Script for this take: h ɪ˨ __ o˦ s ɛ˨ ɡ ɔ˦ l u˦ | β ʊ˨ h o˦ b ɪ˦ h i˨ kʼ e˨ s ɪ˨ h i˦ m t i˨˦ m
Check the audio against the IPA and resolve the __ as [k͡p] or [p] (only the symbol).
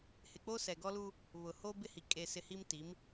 k͡p